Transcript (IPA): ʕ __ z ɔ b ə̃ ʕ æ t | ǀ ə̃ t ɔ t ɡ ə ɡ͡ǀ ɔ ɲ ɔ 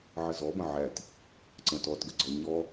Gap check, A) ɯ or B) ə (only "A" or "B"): B